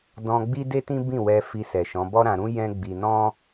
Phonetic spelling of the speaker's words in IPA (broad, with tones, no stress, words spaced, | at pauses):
dɔ̃˧ɡ͡bi˦de˦tĩ˦ bĩ˦˨wɛ˧ fi˧sɛ˨ʃɔ̃˨˦ bɔ˦ɾã˧ɾũ˦ jɛ̃˦ ɡ͡bi˧nɔ̃˦